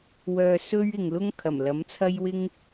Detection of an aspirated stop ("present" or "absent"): present